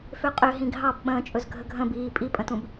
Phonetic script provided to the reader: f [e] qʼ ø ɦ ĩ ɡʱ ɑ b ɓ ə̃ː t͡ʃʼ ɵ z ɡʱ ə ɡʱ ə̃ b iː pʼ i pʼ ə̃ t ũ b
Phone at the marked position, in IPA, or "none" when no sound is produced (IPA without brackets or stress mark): ø